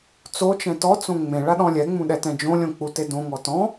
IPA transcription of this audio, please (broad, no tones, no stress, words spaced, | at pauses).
t͡sot͡ʃɛ̃ tɔt͡sõ ŋ͡mẽ ɭaɗɔ̃lʲɛŋ͡mũ ɗɛtɛ̃d͡ʒõlʲõ k͡putedõŋɔ tɔ̃